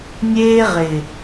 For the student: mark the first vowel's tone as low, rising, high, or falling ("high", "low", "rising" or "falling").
high